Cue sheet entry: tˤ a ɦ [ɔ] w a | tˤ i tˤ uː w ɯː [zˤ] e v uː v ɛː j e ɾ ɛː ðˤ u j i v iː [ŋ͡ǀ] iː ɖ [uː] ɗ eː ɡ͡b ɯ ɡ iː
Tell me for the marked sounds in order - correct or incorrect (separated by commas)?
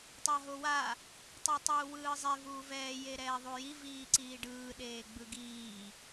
incorrect, correct, incorrect, incorrect